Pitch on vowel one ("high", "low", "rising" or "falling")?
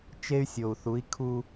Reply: high